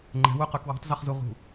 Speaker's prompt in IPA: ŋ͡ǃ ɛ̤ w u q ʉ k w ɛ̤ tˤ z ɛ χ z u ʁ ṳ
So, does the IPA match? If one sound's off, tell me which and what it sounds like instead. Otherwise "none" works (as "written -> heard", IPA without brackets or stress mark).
none